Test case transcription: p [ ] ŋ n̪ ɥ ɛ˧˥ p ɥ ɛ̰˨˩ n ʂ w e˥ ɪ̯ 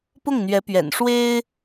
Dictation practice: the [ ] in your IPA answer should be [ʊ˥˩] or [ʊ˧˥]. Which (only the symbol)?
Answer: ʊ˥˩